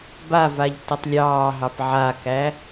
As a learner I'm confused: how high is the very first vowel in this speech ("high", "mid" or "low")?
low